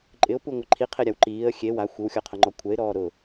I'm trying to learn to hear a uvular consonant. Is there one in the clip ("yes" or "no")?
yes